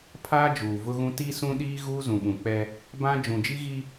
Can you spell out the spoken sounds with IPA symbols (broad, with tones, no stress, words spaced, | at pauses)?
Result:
pʰaː˦d͡ʒuː˨vʊ˦ɣũ˦ ti˦sũ˦ɗiː˦ ɣuː˦zũ˨ɓũ˨k͡pɛ˦ | bã˦ d͡ʒũ˨d͡ʒi˦ɣi˦